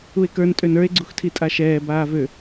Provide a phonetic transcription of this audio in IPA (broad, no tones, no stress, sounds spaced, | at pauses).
u e̯ k ə˞ n tʼ ø n ə˞ e̯ ɡ͡ǀ u x tʰ i tʼ a ʃ ɛː b aː v ø